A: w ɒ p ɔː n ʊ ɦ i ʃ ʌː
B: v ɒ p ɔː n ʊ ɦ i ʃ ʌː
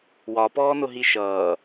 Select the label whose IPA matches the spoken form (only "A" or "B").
A